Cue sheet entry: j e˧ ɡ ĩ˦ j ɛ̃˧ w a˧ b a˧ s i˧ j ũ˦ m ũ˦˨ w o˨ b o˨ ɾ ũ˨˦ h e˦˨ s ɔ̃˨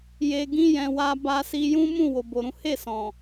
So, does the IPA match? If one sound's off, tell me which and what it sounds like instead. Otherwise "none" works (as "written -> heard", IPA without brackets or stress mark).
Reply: none